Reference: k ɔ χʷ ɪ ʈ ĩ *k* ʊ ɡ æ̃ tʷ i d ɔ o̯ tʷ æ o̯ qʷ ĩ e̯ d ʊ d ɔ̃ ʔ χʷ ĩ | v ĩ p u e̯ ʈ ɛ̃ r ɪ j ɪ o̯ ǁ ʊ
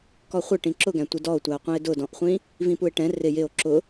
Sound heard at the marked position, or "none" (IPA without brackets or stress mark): ǁ